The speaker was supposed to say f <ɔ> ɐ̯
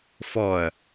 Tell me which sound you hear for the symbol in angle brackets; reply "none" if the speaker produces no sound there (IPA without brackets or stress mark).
ɔ